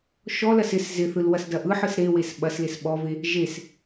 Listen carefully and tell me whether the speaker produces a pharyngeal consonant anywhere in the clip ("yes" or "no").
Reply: yes